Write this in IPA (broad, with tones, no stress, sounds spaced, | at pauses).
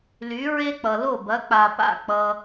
l y˩˥ ɹ e˥ k͡p ʌ˩ l o˥˩ b ɐ˩˥ k͡p a˩ p a̰˥˩ k͡p ʌ˩